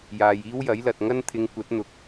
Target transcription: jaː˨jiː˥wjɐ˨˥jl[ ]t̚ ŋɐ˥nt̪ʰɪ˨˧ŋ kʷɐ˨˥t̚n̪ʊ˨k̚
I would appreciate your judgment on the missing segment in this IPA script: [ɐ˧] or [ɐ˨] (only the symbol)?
ɐ˨